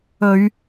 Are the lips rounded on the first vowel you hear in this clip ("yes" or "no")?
yes